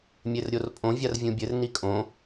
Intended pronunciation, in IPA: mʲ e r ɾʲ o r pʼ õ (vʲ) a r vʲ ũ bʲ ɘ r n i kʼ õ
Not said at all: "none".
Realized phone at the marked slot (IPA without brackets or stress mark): vʲ